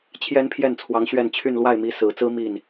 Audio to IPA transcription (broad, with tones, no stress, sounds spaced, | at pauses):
t͡ɕʰ j ɛ˥ n pʰ j ɛ˥˩ n t͡sʰ w ɑ˧˥ ŋ ɕ ɥ ɛ˥˧ n t͡ɕʰ y˥˧ n l w a˥˩ ɪ̯ m i˧˥ s ɹ̩˨˩ t͡s ɹ̩˥ m i˥˩ n